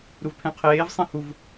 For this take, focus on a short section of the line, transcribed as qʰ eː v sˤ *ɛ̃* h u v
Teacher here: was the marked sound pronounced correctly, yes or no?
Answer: yes